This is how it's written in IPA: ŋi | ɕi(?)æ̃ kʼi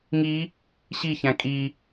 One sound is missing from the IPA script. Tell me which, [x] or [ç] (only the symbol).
ç